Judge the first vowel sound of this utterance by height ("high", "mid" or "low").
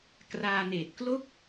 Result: low